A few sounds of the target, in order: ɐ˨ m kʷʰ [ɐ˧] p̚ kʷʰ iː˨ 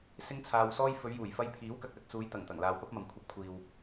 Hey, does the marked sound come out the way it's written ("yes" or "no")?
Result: yes